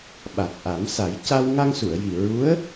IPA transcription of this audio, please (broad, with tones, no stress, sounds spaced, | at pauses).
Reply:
ɓ a˨˩ t̚ ʔ a˨˩˦ m s a˨˩˦ j c a˧ w ŋ a˧ ŋ s u˨˩˨ ə̯ j i˨˩ ɹ u˧˥ ə̯